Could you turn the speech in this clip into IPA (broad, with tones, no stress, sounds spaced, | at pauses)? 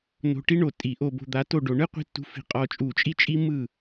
n o̤˧ ʈ i˥ ɳ o˩ tʼ i˧˩˧ ʔ o˧ b o̤˧ d̪ a˨˥ t o˥˩ ɖ o˧ ɳ ɯ˥ qʷ i̤˧ tː ṳ˧ f i̤˧˩˧ qʼ ɔ˧ t͡ʃʼ u˧˩˧ t͡ʃʼ i˥ t͡ʃʼ i˥ m ɯ˥˩